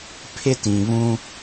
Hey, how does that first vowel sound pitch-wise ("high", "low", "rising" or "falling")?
high